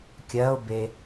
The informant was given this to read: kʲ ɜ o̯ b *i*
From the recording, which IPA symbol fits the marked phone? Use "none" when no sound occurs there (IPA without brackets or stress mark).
e